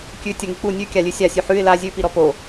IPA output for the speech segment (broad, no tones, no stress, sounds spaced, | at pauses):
kʲ ʉ tʲ ə ŋ i k͡p u nʲ ʉ kʲ a lʲ ʉ sʲ a sʲ ʉ ħ ʉ ɪ̯ l a zʲ ʉ p i ɾ ɔ p o